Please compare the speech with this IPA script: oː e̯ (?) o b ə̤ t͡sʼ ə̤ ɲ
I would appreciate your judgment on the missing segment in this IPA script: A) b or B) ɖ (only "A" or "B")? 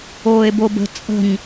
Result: A